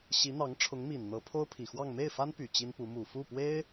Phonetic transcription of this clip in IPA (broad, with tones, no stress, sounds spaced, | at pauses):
ɕ i˧˥ n̪ ɑ˧˥ ŋ ʈ͡ʂʰ ʊ˧˥ ŋ m i˨˩ n n̪ ɤ˧˥ pʰ o˥ ʊ̯ pʰ i˨˩ x w ɑ˥˧ ŋ m e˥˩ ɪ̯ f a˥ n p y˨˩ t͡ɕ i˥ n p u˧˥ m u˨˩ f u˥˩ p w e˥ ɪ̯